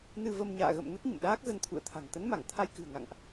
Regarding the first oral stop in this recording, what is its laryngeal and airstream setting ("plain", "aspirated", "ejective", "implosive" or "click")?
plain